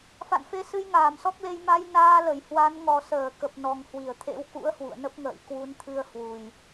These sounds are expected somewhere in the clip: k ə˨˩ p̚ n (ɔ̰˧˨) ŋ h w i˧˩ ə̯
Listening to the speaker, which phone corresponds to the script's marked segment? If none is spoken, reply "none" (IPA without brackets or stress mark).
ɔ˨˩